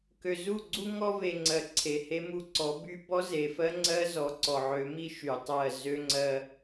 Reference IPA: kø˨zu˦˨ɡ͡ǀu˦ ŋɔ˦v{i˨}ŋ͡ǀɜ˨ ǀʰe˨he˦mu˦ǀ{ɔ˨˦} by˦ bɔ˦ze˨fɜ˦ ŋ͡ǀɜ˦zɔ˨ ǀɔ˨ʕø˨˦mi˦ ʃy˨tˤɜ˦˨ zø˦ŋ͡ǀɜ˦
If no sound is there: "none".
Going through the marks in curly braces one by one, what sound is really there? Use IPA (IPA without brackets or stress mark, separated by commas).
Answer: e˨, ɔ˨˦